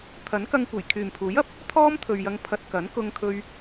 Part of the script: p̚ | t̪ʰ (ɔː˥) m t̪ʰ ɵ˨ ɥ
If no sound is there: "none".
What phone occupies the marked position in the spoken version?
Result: ɔː˥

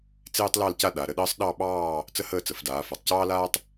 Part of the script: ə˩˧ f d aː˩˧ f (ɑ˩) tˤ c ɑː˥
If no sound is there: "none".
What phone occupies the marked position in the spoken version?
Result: a˩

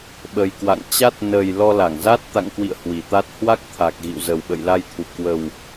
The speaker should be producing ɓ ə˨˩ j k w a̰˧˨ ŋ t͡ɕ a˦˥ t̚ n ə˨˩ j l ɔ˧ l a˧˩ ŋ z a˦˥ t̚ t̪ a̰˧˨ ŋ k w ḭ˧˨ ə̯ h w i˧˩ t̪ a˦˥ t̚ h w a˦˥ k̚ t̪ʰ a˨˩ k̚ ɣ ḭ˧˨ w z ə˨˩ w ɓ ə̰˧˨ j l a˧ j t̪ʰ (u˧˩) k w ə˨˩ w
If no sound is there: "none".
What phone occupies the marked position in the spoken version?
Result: u˧˩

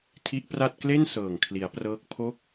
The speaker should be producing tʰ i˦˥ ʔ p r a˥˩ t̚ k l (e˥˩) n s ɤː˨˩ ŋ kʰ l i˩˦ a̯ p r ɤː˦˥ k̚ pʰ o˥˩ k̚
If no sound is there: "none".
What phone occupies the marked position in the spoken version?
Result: e˥˩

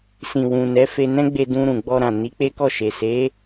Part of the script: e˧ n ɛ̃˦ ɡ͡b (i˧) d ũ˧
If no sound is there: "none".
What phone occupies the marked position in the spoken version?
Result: e˧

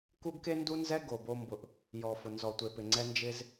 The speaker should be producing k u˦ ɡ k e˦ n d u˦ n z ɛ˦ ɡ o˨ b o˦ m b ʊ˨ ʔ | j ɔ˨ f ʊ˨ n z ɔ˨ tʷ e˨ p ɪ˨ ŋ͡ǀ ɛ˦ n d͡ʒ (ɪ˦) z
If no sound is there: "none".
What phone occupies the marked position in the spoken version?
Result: ɪ˦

